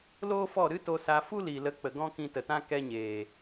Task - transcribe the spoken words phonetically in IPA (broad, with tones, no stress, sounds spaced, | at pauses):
l oː˦ f ɔ˦˨ ɾ ɨ˦ t o˧ s a˧ f u˦ l iː˨ l ə˨˦ k͡p ə˨ ɡ ɔ̃˦ k ĩ˧ t ə˨ t ã˦ k ɛ˦ ɲ eː˨